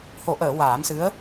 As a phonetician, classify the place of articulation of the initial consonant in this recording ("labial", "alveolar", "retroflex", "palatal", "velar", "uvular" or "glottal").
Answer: glottal